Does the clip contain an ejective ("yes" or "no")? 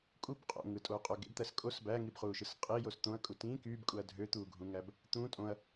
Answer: yes